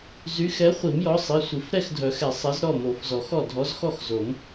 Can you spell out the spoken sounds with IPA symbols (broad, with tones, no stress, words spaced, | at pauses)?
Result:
zy˨˥xɛ˨˥ χʷi˨˩˦mjɔ˨˥sˤi˩˧˩sʷi˨˩˦f ɾɛ˥˨xdʱœ˨˩˦xɛ˨˩˦ sˤɛ˨˥z ɾɔ˥˨mo˨˩˦fzɔ˨˩˦xɔ˥˨ dʱɔ˨˥zxɔ˥˨xzo˨˩˦m